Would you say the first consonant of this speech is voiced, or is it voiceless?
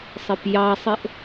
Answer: voiceless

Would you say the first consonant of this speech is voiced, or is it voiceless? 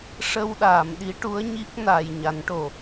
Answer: voiceless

